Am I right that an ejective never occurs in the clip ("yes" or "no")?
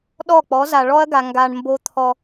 yes